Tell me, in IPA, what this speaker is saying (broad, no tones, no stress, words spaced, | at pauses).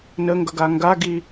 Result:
nəŋɡʌɡa ŋɡaɡi